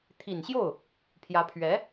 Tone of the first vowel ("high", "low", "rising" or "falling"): low